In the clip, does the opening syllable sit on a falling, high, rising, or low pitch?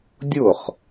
falling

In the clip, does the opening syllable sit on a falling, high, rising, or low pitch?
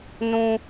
high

